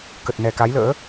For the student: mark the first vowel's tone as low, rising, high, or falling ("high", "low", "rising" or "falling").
low